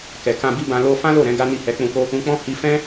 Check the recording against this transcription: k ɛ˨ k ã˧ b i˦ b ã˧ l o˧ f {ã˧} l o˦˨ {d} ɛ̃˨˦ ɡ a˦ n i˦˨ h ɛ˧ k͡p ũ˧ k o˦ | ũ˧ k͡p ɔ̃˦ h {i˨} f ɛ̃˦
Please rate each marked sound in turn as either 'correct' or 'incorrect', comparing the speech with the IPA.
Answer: incorrect: ã˦, incorrect: ɾ, incorrect: i˧

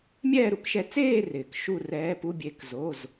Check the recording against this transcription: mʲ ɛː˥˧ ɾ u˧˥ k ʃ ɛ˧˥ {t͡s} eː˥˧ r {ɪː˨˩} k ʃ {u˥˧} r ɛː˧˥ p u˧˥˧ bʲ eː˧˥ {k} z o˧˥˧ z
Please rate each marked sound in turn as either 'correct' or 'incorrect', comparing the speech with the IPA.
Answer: correct, correct, correct, correct

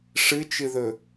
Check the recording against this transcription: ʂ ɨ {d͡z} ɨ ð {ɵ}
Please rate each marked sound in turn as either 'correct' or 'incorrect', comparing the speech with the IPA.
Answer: incorrect: t͡ʃ, correct

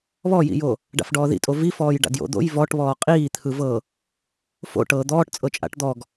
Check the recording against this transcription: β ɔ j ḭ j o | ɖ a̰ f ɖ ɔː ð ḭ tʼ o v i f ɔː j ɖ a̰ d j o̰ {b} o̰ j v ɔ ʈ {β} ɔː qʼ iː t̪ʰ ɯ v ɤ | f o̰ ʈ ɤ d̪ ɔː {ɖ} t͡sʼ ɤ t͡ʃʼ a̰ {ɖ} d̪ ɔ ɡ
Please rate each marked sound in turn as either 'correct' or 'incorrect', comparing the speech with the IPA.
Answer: incorrect: d̪, correct, incorrect: ʈ, incorrect: ʈ

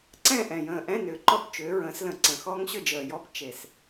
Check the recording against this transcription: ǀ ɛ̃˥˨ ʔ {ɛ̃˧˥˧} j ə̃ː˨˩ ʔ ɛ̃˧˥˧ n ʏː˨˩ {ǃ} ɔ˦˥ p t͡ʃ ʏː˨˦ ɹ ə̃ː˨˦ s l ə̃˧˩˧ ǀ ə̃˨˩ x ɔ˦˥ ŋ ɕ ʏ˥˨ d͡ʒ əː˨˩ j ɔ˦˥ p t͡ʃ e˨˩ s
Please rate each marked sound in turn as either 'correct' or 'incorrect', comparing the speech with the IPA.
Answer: incorrect: ɛ̃˨˩, correct

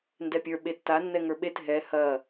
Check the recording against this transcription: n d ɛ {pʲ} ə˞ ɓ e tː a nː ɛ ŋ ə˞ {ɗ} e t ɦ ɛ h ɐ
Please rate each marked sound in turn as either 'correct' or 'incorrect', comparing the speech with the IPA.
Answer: correct, incorrect: ɓ

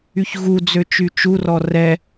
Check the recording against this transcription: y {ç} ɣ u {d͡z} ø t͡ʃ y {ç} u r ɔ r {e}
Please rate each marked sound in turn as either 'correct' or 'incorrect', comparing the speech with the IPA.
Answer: correct, correct, incorrect: t͡ʃ, incorrect: ɛ

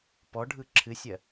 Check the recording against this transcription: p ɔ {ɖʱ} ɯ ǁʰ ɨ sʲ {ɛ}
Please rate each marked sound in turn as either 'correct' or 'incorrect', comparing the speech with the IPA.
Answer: correct, incorrect: ɜ

